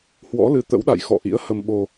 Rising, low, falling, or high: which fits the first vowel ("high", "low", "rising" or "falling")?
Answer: rising